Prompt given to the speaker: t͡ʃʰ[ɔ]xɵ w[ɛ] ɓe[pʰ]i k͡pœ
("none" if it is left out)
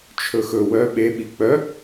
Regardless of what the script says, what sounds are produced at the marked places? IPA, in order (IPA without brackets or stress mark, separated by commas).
ɵ, œ, ɓ